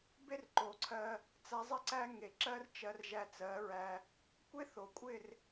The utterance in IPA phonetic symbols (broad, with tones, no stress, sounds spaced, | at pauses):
b e˦ r ǃ o˨ ǀʰ ɜ˧ | t͡s æ˧ zˤ ɪ˦ ǀ æ˦ ŋ e˨ ǁ ɜ˦ r t͡ʃ ɜ˧ r ʒ æ˧ t͡s ɜ˨˦ ɹ æ˧ | kʷ e˦ θ o˨ kʷʼ ɪ˦˨ r